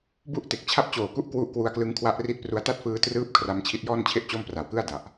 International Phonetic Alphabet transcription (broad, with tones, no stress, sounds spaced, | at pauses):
b u˥˩ ʔ t e˨˩ k̚ t͡ɕʰ a˦˥ p̚ t͡ɕ oː˨˩ k u˥˩ ʔ k w u˦˥ ʔ k w u˧ a̯ k l ɯ˦˥ ŋ kʰ w a˦˥ ʔ r i˦˥ t̚ p r u˧ a̯ t a˥˩ t̚ f ɯː˧ t r ɯː˦˥ p̚ kʰ r a˧ m t͡ɕʰ i˦˥ t̚ j ɔː˥˩ n t͡ɕʰ e˥˩ ʔ t͡ɕ o˥˩ m p r a˨˩ w k ɯ˥˩ a̯ d a˨˩ ʔ